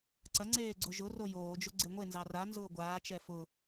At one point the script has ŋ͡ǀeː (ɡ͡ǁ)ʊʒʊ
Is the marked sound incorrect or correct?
incorrect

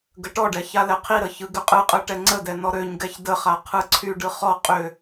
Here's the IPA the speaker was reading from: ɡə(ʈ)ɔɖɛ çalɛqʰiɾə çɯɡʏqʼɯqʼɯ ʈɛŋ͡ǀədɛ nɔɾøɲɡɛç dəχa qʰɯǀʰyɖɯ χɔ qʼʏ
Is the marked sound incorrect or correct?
correct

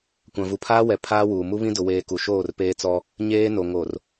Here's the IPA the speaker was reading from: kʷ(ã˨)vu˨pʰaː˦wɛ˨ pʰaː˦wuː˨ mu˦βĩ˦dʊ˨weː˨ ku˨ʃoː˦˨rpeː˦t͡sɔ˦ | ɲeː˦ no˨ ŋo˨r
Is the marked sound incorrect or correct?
correct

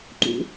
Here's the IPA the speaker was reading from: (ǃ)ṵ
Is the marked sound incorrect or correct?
correct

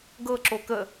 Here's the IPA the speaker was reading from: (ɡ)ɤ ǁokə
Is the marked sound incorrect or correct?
correct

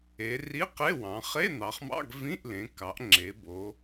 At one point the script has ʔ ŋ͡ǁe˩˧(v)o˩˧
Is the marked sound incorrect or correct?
incorrect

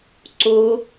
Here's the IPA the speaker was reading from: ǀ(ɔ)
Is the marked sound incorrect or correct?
incorrect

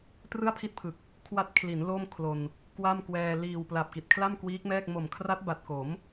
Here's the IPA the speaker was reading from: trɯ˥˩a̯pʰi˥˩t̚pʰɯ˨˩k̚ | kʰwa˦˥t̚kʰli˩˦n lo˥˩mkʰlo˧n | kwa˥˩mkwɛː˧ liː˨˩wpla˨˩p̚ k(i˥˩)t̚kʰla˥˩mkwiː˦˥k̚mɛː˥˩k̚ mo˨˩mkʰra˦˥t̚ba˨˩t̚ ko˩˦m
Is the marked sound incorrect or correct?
incorrect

